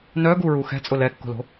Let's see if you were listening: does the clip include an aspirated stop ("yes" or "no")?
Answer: no